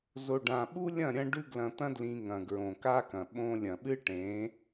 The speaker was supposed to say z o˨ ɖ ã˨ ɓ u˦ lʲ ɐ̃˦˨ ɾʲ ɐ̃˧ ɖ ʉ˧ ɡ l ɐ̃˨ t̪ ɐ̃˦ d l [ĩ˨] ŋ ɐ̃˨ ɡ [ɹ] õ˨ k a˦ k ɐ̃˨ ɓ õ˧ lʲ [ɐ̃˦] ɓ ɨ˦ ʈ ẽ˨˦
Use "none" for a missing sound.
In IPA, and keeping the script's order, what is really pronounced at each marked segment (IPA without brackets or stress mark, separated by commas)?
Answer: ĩ˧, ɹ, ɐ̃˨